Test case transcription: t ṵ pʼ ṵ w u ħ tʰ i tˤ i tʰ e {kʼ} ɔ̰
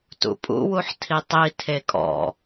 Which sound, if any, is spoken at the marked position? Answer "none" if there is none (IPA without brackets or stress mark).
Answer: kʼ